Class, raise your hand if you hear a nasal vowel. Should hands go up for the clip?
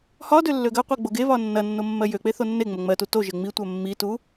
no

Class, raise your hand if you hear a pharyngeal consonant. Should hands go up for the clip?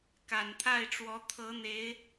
no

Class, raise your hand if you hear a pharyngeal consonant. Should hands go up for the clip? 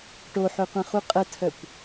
yes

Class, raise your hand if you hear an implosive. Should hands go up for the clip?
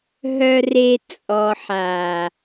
no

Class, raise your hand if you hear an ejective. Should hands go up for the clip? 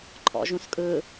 yes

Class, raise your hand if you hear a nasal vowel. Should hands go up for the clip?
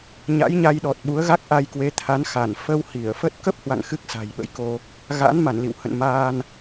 no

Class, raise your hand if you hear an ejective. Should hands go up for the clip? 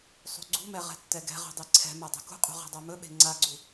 yes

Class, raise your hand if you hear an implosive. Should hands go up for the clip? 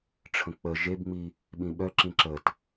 yes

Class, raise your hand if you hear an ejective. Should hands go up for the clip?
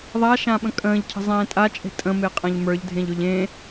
yes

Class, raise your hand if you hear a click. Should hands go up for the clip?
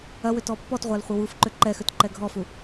yes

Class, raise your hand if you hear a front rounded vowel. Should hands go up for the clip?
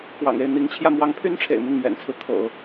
yes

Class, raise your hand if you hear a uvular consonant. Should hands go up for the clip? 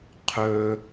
yes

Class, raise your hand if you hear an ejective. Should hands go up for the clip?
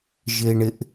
no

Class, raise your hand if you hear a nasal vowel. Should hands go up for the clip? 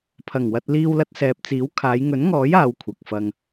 no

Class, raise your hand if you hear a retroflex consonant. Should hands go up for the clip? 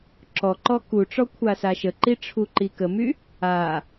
yes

